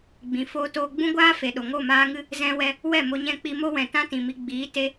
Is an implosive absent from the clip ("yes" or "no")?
no